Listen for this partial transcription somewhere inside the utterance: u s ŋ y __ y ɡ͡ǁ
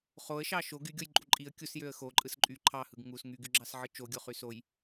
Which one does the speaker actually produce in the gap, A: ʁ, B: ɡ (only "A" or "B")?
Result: B